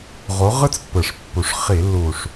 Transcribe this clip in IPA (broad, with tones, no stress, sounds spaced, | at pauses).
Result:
ʁ o˨˦ ʁ ɯ˦ t͡s pː ɯ˨˩ ʂ pː u˨˩ ʂ χ i˧˩˧ lː u˨˩ ʂ